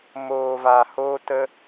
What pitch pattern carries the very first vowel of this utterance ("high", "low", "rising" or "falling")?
low